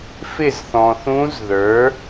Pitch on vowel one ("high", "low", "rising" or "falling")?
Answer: falling